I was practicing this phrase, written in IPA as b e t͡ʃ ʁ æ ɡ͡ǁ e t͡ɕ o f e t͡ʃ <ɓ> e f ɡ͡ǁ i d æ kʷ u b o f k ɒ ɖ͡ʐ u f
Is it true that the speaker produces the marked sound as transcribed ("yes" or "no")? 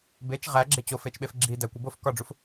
yes